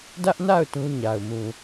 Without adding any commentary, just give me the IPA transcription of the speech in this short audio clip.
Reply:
dä˦ʔna˦˨ʊ̯ tũ˦ɲa˨ʊ̯ mũ˨

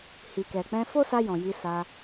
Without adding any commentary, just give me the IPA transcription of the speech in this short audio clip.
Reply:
hi˨kɛ˨k͡pɛ̃˧ fo˦sa˧jɔ̃˨ ji˧ sa˧

